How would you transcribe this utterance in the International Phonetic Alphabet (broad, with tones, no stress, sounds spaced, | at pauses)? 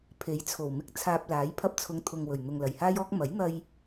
pʰ e˨˥ j t͡sʰ o˨˩ w m ɪ˧ k̚ t͡sʰ aː˧ p̚ l aː˨˥ j pʰ ɐ˧ p̚ t͡sʰ ʊ˨˧ ŋ t̪ʰ ʊ˨ ŋ w ɵ˨˩ ɥ n̪ ʊ˨ ŋ l ɐ˨˩ j h aː˥ j ɔː˥ k̚ m ɐ˨˥ j n̪ ɐ˧ j